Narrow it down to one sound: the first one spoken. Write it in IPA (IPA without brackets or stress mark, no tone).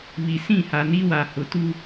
β